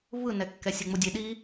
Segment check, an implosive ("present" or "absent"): present